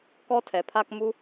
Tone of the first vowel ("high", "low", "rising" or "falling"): high